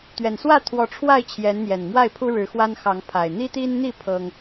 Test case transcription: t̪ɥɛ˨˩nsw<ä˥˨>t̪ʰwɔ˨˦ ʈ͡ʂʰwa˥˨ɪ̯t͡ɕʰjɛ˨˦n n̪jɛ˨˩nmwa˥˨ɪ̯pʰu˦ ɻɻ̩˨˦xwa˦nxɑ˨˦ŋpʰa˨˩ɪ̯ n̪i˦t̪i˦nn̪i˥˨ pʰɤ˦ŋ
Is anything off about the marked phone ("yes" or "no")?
no